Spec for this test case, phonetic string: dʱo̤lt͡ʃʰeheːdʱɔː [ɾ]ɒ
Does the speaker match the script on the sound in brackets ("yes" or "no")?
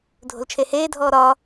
yes